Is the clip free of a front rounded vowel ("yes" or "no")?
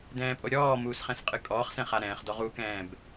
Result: yes